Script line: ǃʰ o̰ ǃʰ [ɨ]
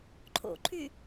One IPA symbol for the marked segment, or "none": y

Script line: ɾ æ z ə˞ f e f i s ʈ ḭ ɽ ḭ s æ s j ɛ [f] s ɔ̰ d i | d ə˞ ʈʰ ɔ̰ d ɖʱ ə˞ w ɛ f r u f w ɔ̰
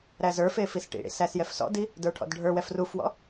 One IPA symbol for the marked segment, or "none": f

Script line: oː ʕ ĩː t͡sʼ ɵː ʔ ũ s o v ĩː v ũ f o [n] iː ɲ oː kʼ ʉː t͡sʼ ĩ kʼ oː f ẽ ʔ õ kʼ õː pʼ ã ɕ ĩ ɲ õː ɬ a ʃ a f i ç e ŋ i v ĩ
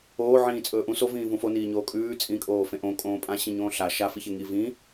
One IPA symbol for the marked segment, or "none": n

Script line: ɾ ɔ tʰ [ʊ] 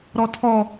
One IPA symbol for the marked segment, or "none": ɔ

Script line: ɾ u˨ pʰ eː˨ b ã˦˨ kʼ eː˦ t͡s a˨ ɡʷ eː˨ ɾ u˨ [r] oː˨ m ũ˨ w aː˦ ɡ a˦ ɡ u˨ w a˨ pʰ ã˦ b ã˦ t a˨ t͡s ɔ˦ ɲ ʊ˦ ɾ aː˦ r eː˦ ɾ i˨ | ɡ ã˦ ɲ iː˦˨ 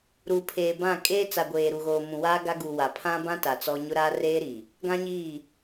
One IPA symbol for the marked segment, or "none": ɣ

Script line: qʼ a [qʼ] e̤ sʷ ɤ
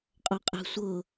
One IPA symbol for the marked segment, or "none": qʼ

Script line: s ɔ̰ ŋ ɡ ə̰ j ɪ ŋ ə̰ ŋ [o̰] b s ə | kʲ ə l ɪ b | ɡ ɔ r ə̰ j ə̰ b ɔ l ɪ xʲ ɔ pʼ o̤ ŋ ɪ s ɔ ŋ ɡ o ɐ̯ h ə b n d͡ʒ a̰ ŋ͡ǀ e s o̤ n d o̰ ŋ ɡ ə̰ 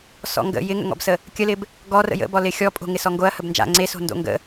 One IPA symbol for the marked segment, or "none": ɔ̰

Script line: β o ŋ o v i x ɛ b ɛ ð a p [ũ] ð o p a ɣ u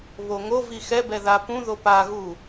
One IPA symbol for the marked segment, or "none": ũ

